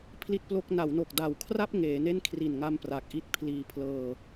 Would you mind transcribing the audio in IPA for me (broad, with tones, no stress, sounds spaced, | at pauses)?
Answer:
pʰ l i˥˩ t̚ p l o˥˩ k̚ n a˩˦ w n o˨˩ k̚ d a˨˩ w kʰ r a˥˩ p̚ ŋ eː˩˦ n e˥˩ n kʰ r i˨˩ n ŋ a˧ m p r a˨˩ k̚ ʔ i˦˥ t̚ pʰ l iː˧ pʰ l ɤː˧